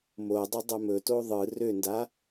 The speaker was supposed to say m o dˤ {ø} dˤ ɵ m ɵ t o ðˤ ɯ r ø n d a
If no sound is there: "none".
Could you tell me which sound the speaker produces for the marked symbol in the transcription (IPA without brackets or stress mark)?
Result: ɵ